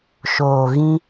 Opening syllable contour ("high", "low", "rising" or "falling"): low